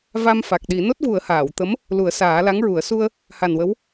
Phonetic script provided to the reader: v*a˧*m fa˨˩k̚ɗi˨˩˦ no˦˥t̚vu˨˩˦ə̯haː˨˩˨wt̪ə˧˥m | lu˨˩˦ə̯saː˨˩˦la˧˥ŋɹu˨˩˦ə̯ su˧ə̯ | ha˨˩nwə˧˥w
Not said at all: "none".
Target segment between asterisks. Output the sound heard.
a˧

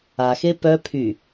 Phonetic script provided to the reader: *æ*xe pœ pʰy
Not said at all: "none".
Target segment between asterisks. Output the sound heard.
a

